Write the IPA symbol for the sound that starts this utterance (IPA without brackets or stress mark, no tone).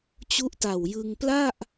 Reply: t͡ɕ